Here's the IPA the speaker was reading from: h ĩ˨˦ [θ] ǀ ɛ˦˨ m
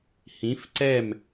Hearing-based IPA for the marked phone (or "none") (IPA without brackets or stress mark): f